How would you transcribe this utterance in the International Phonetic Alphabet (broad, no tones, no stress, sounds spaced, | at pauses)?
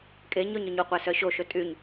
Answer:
kʼ e ɲ ɵ ɲ œ ɲ u qʷ æ s œ ɕ o ʃ ɵ tʼ y ɲ